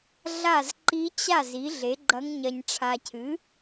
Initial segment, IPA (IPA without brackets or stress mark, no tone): ɮ